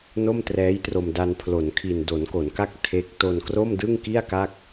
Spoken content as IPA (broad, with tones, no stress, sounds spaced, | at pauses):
n o˥˩ m t r ɛː˦˥ j t r o˧ m d a˧ n pʰ l o˩˦ n kʰ i˨˩ n d o˩˦ n k o˩˦ n k a˥˩ k̚ tʰ e˦˥ k̚ t o˧ n k r o˥˩ m d ɯ˥˩ ŋ k i˥˩ a̯ k a˥˩ k̚